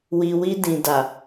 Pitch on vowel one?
low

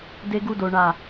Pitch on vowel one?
high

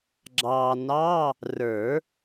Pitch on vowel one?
low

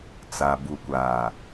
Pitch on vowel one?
low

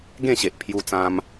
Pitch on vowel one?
falling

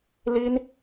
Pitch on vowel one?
high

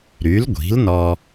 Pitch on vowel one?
rising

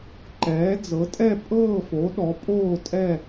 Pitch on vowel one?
rising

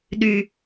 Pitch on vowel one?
low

